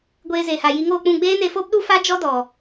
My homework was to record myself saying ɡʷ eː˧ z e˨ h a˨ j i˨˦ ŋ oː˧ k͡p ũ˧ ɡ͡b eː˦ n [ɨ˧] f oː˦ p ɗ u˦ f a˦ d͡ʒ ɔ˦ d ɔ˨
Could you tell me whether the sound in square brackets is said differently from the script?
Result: yes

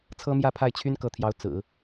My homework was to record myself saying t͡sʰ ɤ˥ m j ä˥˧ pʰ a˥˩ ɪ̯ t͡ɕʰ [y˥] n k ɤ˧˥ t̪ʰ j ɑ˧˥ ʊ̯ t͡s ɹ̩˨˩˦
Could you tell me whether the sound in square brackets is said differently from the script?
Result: no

